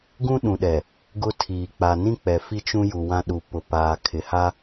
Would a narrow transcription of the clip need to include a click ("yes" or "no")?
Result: no